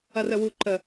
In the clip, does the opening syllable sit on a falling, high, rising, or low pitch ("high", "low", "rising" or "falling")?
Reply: low